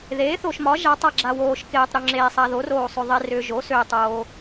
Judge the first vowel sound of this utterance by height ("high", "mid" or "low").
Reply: mid